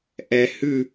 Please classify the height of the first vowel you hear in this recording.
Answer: mid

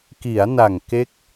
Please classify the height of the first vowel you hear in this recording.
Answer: high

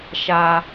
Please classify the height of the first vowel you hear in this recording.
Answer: low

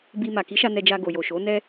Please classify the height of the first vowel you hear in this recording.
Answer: high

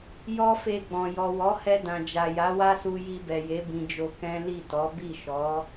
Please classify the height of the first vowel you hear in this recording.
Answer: mid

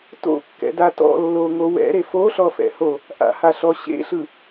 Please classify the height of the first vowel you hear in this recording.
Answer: mid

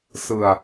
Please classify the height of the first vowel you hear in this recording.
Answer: high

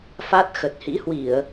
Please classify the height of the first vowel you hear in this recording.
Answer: low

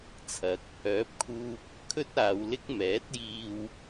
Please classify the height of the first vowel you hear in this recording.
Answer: low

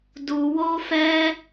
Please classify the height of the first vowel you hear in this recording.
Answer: high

